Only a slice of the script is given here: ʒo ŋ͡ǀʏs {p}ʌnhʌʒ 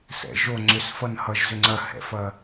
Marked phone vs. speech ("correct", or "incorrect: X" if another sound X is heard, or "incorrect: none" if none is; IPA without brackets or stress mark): incorrect: f